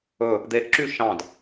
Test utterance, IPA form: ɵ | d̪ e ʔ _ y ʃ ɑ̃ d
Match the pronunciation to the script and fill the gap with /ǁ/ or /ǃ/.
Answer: ǁ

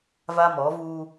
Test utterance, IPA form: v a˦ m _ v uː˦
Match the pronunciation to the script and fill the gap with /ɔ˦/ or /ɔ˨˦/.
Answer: ɔ˨˦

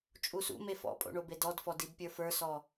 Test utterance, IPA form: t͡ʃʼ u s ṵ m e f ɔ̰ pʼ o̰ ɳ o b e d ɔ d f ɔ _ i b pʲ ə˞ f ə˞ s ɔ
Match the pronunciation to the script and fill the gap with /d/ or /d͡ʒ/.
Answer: d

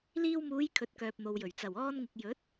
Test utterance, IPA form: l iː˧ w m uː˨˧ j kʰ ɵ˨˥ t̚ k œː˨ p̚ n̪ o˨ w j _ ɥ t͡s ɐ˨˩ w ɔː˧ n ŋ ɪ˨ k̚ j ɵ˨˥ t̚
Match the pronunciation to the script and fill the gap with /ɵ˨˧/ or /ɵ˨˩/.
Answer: ɵ˨˩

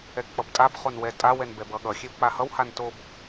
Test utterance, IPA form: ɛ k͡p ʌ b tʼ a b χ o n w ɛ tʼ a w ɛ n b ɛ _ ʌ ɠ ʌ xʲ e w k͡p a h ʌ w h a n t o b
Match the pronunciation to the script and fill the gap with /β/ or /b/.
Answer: b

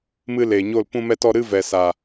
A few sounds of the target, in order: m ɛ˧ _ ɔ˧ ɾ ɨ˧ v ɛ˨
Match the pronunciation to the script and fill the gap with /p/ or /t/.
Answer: t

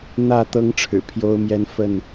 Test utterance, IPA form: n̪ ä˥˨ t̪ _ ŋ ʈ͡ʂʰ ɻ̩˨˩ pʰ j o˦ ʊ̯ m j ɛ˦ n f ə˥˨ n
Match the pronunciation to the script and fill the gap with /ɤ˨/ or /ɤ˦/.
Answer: ɤ˦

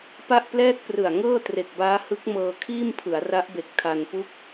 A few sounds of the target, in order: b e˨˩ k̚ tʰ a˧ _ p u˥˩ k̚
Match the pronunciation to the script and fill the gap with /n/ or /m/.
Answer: n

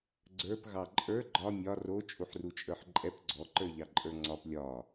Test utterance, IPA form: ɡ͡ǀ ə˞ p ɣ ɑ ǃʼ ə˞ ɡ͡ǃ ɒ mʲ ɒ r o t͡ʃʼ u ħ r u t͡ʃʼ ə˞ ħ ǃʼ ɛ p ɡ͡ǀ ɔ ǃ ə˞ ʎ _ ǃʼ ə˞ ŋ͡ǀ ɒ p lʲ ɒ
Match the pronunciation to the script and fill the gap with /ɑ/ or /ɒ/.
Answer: ɑ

